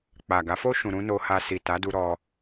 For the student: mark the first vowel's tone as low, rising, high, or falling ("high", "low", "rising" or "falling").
low